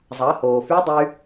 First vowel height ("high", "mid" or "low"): low